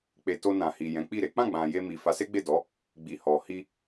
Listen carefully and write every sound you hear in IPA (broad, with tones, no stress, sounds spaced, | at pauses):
k͡p e˨ t o˧ n ã˨ h i˨ j ɛ̃˨˦ k͡p i˦˨ ɾ e˨˦ k͡p ã˦˨ ɡ͡b ã˨ j e˧ m i˨ f a˨˦ s e˦ ɡ͡b e˦˨ d ɔ˨˦ | ɡ͡b i˨ h ɔ˨ h i˧